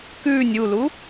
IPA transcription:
k ʉː nʲ u l u

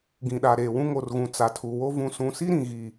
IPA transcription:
ɡ ĩ˨ ɗ a˨ ɾ eː˨ w ũ˦ ŋ o˨ r ɣ ũ˨ t͡s a˨ tʰ u˨ w o˦ v ũ˨ s ũ˨ s i˦ ɾ ĩ˨ ɣ i˦˨

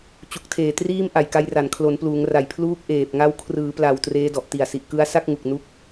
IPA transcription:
t͡ɕ u˨˩ k̚ tʰ eː˨˩ t r iː˥˩ m ʔ a˨˩ j k a˧ j r a˨˩ n kʰ l o˩˦ n p l uː˩˦ ŋ r a˨˩ j pʰ l uː˥˩ k̚ ʔ eː˨˩ p̚ ŋ a˧ w kʰ r ɯː˩˦ p l a˨˩ w t r eː˦˥ d ɔ˨˩ ʔ t i˨˩ a̯ s i˨˩ ʔ k ɯ˧ a̯ s a˥˩ k̚ ŋ u˨˩ k̚ n u˦˥ k̚

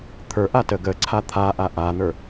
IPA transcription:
t̪ʰ ə˞ ʔ a t ə ɡ ə ǀʰ a t̪ʰ a ʔ a ʔ a n̪ ə˞

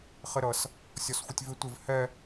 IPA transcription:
χ ɪ ɾ ʌ s | sʲ ɔ s xʷ ə tʲ v ɪ tʷ ɪ v h ɛ

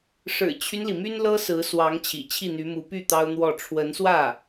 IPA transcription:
ʂ ɻ̩˨˩ t͡ɕʰ y˦ n l i˩ m y˥ n l ɤ˥ s ɹ̩˧˥ s w ɑ˧˥ ŋ t͡ɕʰ ḭ˨˩ t͡ɕʰ i˥˩ n̪ y˧˥ m u˧˥ p y˥˩ t̪ ɑ˥ ʊ̯ n̪ w ɔ˥˩ ʈ͡ʂʰ w ə˧˥ n s w ä˥˩

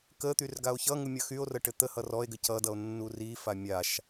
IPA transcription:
k ə t̪ y r ɡ a o̯ ç ʌ ŋ u mʲ ʌ x y o̯ r ə ʈ ɘ t̪ ə h ʌ r ɔ e̯ ɡ ɘ c ʌ d ʌ o̯ nː u r i f a mʲ a ʃ

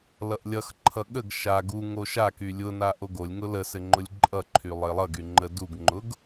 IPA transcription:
l ʌ ʔ lʲ ʌ x ǃʰ ʌ ɠ ə ɡ ʃ a ɡ u ŋ o ʃ a k y lʲ ʊ n a ʔ o ɡ o lʲ ŋ ʊ l ə s ɘ ŋ͡ǃ ʊ lʲ ǃʼ ʌ ǃʰ y lˠ ɘ lˠ ʌ ɡ y ŋ͡ǃ ə d u ɡ ŋ͡ǃ ʊ ɡ

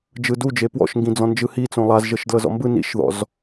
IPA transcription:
d͡ʒ ɯ d u d͡ʒ e p w ɔ̰ ʃ ŋ ɡ ĩ d͡z ɔ̃ n d͡ʒ ɯ h i t͡s õ lˠ a z ʒ ɤ ʃ d l ɤ z ɔ̰ m b ɯ n ḭ ʃ ð ɔ̰ z

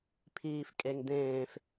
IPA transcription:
pʰ iː f kʼ e ŋ d ẽː f

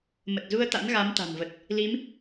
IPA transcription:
m ə˨˩ t̚ z u˧ ə̯ t̪ a̰˧˥ n ɣ a˨˦ m t̪ a̤˨˩ n v ə˨˩ t̚ | l i˨˦ m

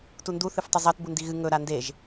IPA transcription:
t u n d u θ ɨ f tˤ o zˤ ɐ t b u n d i ɣ ɨ ŋ ɵ ɾ a n d e ʒ

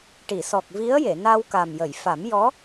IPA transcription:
ʈ i˨˩˨ s ɔ˨˩ k̚ v i˧˥ ə̯ j e˨˩˨ n a˧ w k a˨˩ m j ə˨˩˨ j f a˨˩˦ m j ɔ˧˥

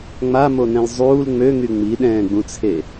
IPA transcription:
ŋ͡m a m o n ɛ̃ l zˤ uː l ŋ͡m ø ŋ y ŋ͡m i ɗ ɛ̃ː ɡ͡b ũ t͡sʰ e

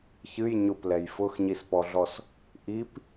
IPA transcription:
ç ɨ j ɲ ʊ p l ɛ j f ʊ x ɲ i s p ɔ ɮ ɔ s | ʔ i p

